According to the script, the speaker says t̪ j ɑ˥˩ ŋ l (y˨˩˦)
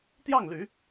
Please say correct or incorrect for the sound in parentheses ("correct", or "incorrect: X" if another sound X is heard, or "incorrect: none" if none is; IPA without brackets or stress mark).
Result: correct